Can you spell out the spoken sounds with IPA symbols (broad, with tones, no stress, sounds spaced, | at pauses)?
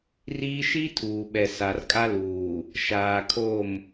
r iː˦ ʃ i˦ tʰ uː˨ ɓ ɛ˨ s a˨ r kʼ a˦ l uː˨ | ʃ aː˨ kʰ o˦˨ m